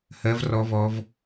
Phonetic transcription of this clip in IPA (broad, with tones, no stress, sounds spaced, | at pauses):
h ɜ˧ v r ɔ˧ v ɔ˧ v